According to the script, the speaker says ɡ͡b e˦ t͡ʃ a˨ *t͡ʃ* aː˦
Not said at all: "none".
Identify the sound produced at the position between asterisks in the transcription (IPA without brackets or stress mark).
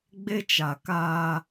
k